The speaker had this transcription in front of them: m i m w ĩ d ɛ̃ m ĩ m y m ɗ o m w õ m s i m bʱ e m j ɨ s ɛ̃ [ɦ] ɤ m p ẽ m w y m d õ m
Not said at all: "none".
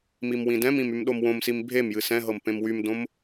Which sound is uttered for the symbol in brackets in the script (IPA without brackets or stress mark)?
ɦ